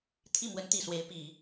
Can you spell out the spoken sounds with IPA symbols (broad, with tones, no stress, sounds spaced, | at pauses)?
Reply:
t̪ʰ i˥˩ m w ə˧˥ n t̪ i˨˩ s w e˧˥ ɪ̯ p i˨˩˦